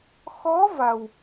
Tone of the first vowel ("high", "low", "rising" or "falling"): rising